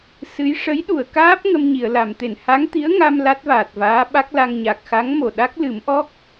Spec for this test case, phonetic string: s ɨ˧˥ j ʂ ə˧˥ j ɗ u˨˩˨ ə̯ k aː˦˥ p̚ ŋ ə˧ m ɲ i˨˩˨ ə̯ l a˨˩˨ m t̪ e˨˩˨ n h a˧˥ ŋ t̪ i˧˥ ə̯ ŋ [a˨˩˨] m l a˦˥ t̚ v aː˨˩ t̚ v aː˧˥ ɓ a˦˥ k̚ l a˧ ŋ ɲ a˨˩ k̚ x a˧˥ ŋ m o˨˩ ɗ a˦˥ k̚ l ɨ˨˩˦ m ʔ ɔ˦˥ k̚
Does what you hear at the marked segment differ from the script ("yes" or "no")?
yes